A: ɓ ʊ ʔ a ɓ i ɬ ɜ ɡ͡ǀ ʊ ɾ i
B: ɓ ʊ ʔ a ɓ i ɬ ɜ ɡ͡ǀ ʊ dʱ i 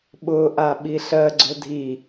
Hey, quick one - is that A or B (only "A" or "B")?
B